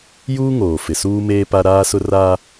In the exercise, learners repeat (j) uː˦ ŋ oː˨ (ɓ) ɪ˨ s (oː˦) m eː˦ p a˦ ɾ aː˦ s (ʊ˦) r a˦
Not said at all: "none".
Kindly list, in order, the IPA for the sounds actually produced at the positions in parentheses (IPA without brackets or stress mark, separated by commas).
j, f, uː˦, ʊ˦